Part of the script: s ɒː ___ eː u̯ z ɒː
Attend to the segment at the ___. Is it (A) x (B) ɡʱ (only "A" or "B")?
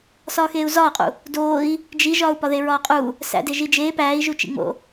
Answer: A